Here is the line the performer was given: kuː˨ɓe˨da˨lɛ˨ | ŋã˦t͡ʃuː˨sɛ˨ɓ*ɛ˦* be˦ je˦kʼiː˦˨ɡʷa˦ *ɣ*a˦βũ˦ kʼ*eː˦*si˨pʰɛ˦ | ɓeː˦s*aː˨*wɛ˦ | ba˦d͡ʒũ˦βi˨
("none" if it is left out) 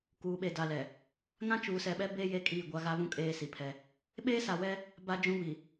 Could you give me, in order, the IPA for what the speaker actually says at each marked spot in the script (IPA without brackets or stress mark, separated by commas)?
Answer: ɛ˦, ɣ, eː˦, a˨